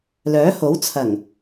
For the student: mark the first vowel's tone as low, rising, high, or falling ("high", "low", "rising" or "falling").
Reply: rising